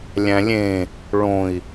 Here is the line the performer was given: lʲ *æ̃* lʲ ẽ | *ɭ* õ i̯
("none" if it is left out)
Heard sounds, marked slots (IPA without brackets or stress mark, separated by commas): æ̃, ɭ